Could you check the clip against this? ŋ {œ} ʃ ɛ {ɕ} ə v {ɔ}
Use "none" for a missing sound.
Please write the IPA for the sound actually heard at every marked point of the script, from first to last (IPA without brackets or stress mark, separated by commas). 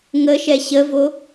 ə, ɕ, o